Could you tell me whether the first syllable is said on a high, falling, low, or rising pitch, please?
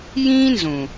high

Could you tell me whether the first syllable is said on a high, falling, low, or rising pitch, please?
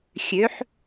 rising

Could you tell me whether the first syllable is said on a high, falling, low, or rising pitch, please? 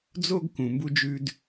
high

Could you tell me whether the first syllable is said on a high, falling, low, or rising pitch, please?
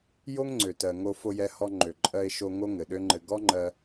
high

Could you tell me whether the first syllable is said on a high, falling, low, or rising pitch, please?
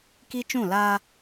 high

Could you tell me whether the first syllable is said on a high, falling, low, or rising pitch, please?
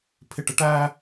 low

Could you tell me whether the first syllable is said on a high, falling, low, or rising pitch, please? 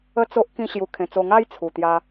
high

